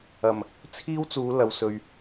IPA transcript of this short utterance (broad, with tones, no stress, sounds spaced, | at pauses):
ɐ˨˩ m | t͡sʰ iː˥ w t͡s uː˨˧ l ɐ˨ w s ɵ˨ ɥ